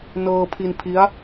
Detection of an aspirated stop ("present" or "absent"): present